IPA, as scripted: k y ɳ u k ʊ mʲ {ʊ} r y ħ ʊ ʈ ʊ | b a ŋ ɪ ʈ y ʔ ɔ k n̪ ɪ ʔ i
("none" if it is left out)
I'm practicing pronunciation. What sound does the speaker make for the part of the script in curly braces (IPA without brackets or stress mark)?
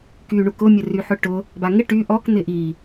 ʊ